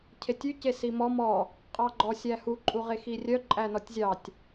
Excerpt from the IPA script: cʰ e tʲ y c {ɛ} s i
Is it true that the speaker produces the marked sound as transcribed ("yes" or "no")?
no